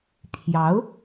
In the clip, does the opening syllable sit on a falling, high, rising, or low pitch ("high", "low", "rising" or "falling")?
rising